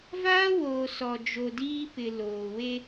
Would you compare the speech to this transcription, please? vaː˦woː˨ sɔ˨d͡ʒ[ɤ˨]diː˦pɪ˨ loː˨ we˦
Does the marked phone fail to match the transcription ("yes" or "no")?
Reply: yes